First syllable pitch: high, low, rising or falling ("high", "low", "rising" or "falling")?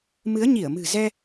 rising